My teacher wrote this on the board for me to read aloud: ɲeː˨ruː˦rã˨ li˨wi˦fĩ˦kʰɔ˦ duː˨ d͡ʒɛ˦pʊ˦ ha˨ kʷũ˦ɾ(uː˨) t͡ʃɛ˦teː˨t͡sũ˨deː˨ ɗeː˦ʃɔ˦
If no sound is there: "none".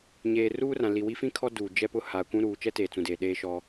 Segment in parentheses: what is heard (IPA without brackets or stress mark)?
uː˨